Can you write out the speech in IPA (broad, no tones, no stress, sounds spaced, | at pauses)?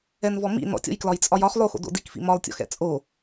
ɛ n v ɔ m ḭ n ɔ̰ tʲ ɔ̰ j k l ɒ j t͡sʼ ɒ j ɒ χ lˠ o x o̰ d o̰ d i k f ḭ m ɒ lˠ tʲ ɔ̰ x ɛ̰ t͡sʼ o